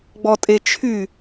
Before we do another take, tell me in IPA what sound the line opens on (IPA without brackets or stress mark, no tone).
ɡ͡b